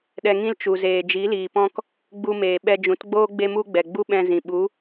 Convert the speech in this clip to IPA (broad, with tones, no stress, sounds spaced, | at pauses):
ɗ ɛ˧ ŋ ĩ˦ l t͡ʃ u˨ z eː˨ d͡ʒ i˨˦ l iː˨ p ɔ̃˦ k | ɡ͡b u˧ m eː˨ ɓ ɛ˧ d͡ʒ ũ˨˦ t ɡ͡b oː˦ ɡ͡b e˦ m u˦ ɡ͡b ɛ˨ ɡ͡b u˦ ɓ ɛ̃˧ z ĩ˨ ɓ u˨˦